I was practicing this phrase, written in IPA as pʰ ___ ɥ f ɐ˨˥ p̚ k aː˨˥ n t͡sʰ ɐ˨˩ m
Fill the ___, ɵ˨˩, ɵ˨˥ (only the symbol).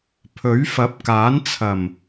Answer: ɵ˨˥